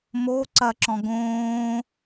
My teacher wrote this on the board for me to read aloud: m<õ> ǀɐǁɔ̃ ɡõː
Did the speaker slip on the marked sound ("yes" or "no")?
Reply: yes